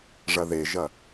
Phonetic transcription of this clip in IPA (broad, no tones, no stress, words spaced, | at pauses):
ʐɐðeʒɐ